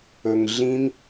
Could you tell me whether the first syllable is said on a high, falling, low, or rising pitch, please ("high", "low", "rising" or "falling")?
low